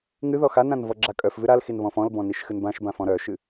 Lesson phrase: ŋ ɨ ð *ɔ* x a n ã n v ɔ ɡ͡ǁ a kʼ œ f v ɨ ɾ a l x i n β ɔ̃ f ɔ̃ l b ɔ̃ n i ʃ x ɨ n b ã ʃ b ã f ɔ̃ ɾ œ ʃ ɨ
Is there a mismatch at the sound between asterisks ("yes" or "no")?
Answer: no